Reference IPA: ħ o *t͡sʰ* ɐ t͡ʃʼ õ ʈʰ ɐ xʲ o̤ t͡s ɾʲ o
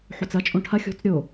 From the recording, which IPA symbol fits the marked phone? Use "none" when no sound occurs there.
t͡s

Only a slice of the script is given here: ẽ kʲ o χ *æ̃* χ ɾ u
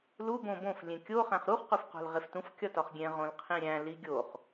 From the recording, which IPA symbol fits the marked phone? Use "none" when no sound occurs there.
æ̃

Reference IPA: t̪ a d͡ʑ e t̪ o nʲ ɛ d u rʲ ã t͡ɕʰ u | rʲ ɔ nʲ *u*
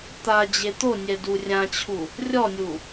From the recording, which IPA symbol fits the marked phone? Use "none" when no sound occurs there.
u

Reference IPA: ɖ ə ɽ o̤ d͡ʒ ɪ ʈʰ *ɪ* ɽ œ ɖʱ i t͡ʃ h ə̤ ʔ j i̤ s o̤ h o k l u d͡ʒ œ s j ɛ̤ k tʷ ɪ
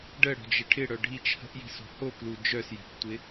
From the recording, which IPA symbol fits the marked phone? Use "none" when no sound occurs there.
ɪ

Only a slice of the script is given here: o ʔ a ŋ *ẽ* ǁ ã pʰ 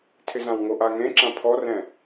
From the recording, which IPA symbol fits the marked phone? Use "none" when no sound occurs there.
ẽ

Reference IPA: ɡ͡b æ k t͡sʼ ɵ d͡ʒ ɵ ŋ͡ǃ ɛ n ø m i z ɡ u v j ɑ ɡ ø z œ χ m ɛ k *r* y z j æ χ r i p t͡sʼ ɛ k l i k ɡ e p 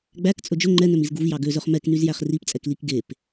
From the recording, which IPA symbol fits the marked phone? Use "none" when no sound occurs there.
n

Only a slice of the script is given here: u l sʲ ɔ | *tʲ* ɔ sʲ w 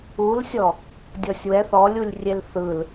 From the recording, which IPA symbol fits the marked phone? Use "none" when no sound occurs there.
dʲ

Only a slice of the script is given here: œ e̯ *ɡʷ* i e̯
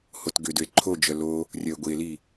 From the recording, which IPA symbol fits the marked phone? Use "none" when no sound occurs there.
ɡʷ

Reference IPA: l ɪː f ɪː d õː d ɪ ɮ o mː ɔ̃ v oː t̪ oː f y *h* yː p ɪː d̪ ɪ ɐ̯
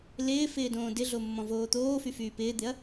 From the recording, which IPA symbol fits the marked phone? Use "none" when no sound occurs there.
f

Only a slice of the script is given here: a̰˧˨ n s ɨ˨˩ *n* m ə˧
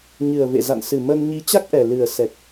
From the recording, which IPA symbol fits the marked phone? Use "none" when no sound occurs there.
none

